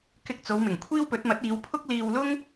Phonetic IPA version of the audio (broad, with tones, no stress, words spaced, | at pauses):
kɪ˧k̚t͡so˨˧wmɪ˨˩ŋ kʷʰiː˥wpɵ˨˥t̚mɐ˨˥t̚iː˨˧w pʰʊ˥k̚liː˧w lʊ˥ŋ